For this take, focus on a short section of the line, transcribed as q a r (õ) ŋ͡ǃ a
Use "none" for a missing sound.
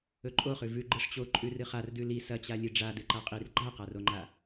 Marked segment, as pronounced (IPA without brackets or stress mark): o